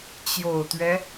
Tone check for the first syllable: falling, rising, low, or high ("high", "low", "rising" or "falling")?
low